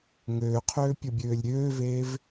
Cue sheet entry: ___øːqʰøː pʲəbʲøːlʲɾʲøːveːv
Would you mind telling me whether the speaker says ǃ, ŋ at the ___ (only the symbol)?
ŋ